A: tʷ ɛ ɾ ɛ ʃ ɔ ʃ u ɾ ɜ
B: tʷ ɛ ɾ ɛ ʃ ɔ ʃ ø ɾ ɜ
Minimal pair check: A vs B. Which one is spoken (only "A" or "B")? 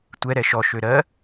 B